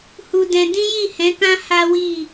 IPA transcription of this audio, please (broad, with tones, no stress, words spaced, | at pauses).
hu˧dɛ̃˧ dĩ˦ji˦˨hɛ̃˨˦kã˦ ha˦wi˦˨